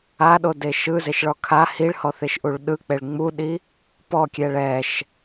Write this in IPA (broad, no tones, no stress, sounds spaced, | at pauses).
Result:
a ɗ o d e ʃ ɯ z e ʃ ɭ ɔ kʰ a h i ɭ h ɔ θ e ʃ ʔ u ɭ ɗ ɯ k͡p e ɭ ŋ͡m u ɗ i | p ɔ kʲ ɛ ɭ ɛ ʃ